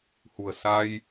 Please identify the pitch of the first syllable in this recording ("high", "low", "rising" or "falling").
low